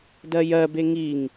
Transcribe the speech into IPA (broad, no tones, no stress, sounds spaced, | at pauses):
d ɜ j ɜ b e ŋ i ŋ